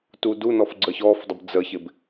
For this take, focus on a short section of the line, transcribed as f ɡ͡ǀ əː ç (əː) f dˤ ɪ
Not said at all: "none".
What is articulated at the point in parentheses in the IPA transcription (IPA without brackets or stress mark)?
ɔː